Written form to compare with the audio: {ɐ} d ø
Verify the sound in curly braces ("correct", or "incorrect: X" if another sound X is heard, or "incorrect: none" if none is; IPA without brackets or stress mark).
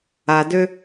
incorrect: a